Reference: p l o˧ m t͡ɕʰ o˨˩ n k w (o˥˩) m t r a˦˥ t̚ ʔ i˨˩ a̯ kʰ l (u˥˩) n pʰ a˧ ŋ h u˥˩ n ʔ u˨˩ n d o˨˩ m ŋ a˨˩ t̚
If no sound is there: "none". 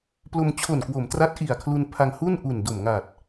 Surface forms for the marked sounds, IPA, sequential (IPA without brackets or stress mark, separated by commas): o˩˦, u˧